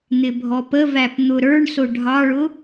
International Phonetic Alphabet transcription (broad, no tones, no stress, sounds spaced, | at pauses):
n̪ ɪ bʱ ɔ p ə v æ p n̪ ʊ ɾ ə˞ ɳ s ʊ ɖʱ ɑ ɭ ʊ